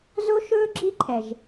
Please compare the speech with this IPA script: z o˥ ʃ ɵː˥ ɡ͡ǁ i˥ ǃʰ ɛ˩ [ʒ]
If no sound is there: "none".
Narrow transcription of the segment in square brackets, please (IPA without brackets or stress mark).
ʒ